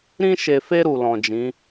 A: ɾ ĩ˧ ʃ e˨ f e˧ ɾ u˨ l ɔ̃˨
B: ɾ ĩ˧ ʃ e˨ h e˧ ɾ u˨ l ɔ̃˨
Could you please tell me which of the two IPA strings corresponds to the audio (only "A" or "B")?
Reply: A